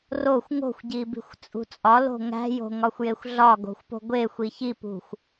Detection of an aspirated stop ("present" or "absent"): absent